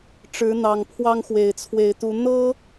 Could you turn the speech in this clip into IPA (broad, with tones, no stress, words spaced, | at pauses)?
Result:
ʈ͡ʂɻ̩˨˦n̪ɑ˨˩ŋpʰwɑ˦ŋ xwe˨˩ɪ̯t͡sʰwe˨˦ɪ̯t̪u˨˦ n̪ɤ˦